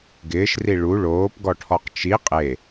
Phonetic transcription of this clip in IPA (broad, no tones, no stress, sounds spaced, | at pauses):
ɡ ɪː ʃ r i ɭ u ɭ oː p ɡ ɔ ʈʰ ɔ q t͡ʃ i qʼ e